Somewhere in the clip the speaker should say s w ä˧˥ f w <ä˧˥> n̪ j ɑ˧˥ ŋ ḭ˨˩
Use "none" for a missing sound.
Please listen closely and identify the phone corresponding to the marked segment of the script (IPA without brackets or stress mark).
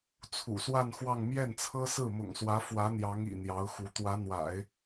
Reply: ä˧˥